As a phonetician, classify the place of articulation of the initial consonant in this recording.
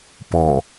labial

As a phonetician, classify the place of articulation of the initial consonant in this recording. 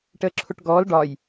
retroflex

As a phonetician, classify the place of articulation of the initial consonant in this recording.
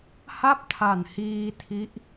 glottal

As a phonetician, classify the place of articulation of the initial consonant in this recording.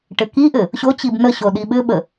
retroflex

